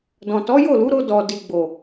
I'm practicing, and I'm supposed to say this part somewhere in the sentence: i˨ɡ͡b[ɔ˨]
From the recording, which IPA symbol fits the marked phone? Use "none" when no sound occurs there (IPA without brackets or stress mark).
o˨